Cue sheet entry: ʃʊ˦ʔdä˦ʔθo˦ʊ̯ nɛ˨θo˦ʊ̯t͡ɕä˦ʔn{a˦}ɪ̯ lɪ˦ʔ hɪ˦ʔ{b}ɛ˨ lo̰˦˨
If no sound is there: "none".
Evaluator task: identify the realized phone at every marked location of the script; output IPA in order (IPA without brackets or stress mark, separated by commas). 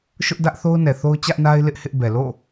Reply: a˦, b